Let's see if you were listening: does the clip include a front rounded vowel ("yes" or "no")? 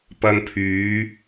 yes